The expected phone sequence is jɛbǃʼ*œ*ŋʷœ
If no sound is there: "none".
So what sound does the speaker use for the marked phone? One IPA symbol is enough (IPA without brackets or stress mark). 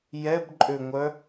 ø